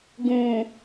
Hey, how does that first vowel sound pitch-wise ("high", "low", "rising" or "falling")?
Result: low